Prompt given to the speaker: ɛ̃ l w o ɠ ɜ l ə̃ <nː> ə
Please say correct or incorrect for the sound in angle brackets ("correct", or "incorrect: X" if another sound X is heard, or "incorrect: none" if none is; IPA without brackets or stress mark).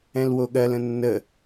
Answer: correct